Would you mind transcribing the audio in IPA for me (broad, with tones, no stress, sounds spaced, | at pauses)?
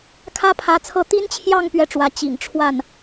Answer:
kʰ ä˥ pʰ ä˧˥ t͡sʰ ɤ˥˩ t̪ i˥ n t͡ɕʰ j ɑ˥˧ ŋ p ɥ ɛ˥˩ ʈ͡ʂ w ä˧˥ t͡ɕ ḭ˨˩ ŋ ʈ͡ʂʰ w a˥˩ n